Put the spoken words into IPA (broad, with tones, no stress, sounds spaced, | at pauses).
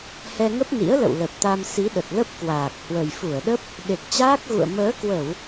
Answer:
h ɛ˧ ŋ ə˦˥ p̚ n ḭ˧˥ ə̯ l ə̰˧˨ w l ə˨˩ p̚ t̪ a˧ m s i˨˦ ɗ ə˨˩ t̚ l ə˦˥ p̚ k w aː˨˩ k̚ h w ə˨˩ j f u˧˩ ə̯ ɗ ə˦˥ p̚ | ɗ e˨˩ k̚ t͡ɕ aː˦˥ k̚ ɣ ṵ˧˨ ə̯ m əː˨˦ k w ə˧˩˨ w